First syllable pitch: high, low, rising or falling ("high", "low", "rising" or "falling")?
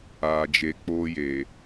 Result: low